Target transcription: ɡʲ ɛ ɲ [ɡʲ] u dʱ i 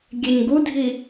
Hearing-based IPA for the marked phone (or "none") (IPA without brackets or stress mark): ɡ